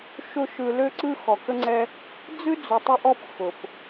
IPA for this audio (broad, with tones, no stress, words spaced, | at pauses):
ʃʊ˦ʃɯ˧ lø˦ǀɯ˦ xɔ˨kə˧ŋ͡ǀɛ˧ | d͡zɯ˦d͡zʊ˨tˤʊ˧ʔɔ˧p xʊ˨p